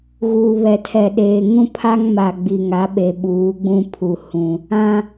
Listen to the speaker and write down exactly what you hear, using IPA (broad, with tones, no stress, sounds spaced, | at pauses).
ɣ uː˨ β ɛ˨ tʰ ɛ˨ ɗ eː˨ ŋ ũ˦ pʰ a˦ ŋ m a˨ ɡ͡b i˨ ŋ a˨˦ ɓ e˨ ɓ uː˨˦ ɡ͡b ũ˦ pʰ u˨ h ũ˨ | ã˦